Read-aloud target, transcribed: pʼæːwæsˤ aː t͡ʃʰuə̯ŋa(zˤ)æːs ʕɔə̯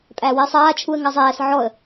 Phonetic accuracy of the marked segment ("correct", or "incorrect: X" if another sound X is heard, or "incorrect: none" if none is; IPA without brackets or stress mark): correct